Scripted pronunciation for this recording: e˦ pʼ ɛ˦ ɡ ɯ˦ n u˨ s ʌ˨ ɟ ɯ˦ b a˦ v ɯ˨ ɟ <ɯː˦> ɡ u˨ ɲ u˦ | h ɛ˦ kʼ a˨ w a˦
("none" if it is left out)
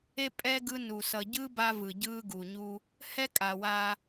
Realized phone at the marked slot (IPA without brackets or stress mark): ɯː˦